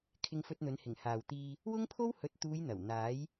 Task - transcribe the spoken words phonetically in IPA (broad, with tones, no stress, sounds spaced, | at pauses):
kʰ ɪ˧ ŋ f ɵ˧ t̚ n̪ ɵ˨˧ n h ɪ˨˩ ŋ h aː˨ w t̪ iː˧ | w ʊ˥ ŋ pʰ o˥ w h ɵ˨˥ t̚ t̪ uː˨˧ j n̪ ɐ˨˩ w n̪ aː˨˥ j